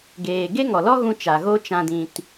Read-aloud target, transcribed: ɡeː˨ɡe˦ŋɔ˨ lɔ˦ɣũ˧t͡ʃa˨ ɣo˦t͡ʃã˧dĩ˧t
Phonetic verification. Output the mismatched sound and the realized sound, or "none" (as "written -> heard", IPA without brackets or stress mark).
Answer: none